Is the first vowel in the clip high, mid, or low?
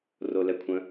mid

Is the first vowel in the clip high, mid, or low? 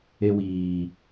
mid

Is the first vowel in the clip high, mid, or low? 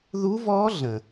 high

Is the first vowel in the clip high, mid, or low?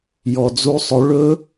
mid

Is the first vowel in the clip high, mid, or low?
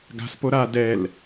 low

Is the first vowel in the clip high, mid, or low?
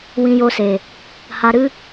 high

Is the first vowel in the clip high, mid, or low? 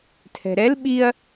mid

